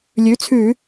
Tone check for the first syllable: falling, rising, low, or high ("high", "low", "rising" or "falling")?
rising